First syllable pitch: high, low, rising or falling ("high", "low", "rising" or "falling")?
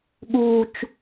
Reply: high